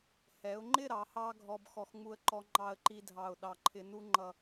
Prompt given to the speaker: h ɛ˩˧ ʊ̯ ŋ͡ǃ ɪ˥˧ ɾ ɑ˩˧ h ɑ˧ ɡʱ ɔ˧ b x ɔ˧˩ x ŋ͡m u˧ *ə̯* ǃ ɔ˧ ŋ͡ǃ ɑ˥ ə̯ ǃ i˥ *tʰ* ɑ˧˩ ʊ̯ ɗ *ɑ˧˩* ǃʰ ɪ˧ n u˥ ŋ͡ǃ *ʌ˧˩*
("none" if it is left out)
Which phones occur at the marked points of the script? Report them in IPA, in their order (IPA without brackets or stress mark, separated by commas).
ə̯, dʱ, ɑ˧˩, ʌ˧˩